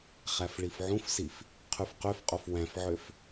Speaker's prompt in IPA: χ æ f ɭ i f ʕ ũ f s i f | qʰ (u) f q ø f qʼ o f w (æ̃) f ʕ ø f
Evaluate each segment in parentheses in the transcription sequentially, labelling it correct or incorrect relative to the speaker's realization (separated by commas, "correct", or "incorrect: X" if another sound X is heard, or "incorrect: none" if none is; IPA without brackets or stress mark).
incorrect: y, correct